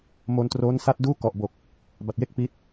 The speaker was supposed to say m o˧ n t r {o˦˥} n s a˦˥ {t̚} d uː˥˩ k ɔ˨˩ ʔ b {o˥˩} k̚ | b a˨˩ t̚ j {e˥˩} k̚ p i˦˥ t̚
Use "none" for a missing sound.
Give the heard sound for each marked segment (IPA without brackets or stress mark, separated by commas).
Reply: oː˦˥, t̚, o˨˩, e˥˩